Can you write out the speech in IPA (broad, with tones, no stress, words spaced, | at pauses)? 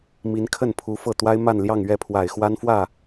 mi˧˥n kʰə˥˩npʰu˧˥ fɤ˥˩ t̪wa˥ɪ̯ma˥˧nljɑ˥˧ŋ ɥɛ˥˩pʰwa˨˩ɪ̯ xwa˥nfwä˥˩